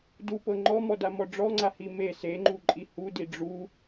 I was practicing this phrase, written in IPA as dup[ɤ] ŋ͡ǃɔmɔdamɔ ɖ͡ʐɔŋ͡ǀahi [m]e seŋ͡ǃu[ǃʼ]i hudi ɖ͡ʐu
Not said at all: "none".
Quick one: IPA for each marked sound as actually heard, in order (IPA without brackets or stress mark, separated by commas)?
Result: ɤ, m, ǃʼ